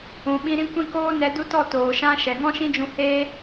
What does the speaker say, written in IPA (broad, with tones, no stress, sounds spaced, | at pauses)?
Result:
ũ˨ ɓ ĩ˧ ɾ ĩ˦ kʷ ĩ˦ k oː˦ n ɛ˧ d u˦ t ɔ˦˨ t oː˨ ʃ ã˦ ʃ ɛ˨ ŋ ɔ̃˦ ʃ ĩ˦ d͡ʒ ũ˧ h eː˦